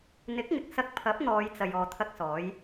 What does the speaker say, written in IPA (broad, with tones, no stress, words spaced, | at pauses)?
n̪ɪ˨˥k̚ŋɪ˨k̚sɐ˧k̚pʰɐ˨˥p̚ n̪ɔː˨˧jt͡sɐ˨j ɔː˧t̪ʰɐ˥k̚sɔː˨˥j